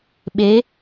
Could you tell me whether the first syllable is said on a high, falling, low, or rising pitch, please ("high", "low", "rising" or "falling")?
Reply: rising